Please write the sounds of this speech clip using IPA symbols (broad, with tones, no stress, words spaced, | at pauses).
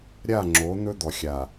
ɾʲa˦˨ ŋ͡ǁo˨˦ n̪ɵ˦d̪ɔ˨xʲa˨